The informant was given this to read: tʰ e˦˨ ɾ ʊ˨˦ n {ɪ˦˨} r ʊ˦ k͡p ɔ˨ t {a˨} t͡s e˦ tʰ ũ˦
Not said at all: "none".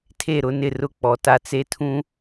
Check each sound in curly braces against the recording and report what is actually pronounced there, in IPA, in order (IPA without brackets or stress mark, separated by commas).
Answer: ɪ˦˨, a˨